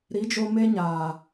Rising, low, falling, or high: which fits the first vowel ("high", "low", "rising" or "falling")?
rising